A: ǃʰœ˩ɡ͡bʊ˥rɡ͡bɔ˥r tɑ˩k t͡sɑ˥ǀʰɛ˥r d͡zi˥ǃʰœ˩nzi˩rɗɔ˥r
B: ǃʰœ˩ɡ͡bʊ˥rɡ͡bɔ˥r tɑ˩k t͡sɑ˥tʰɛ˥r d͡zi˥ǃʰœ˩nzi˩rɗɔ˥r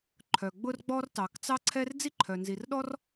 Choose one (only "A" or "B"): A